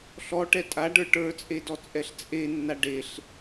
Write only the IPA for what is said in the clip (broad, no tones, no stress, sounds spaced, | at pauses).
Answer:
ɬ ɔ ʈ ɛ tʼ a ɖ ə˞ ʈ ə˞ t͡sʼ e d ɔ t͡sʼ ɛ ɬ t͡sʼ e nː a ɖ e ɬ